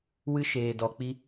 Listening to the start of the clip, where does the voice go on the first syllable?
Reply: high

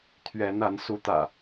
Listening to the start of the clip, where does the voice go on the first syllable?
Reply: rising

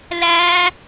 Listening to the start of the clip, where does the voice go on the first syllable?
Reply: high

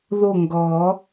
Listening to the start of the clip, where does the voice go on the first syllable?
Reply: falling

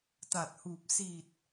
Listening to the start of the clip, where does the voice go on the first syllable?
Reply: low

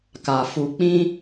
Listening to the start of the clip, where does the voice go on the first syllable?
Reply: low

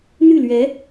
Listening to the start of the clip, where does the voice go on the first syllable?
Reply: falling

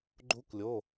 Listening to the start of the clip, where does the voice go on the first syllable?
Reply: rising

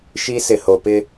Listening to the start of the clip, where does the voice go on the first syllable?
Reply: high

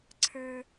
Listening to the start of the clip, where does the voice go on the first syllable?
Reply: high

